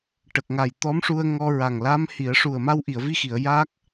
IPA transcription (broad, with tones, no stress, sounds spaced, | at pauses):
ʈ ə˨˩ k̚ ŋ a˨˩ j t̪ ɔ˧˥ m ʂ u˧ ə̯ ŋ ɔ˧ ɹ a˨˩ ŋ l a˧˥ m h i˨˩˦ ə̯ ʂ u˨˩ ə̯ m a˧ w ʔ i˨˩˨ ə̯ v i˧ x i˨˩˨ ə̯ j a˦˥ k̚